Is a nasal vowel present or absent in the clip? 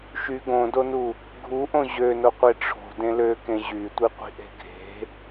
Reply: present